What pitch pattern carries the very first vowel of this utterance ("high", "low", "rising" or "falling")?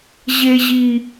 high